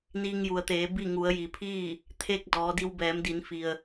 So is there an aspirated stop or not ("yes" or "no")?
yes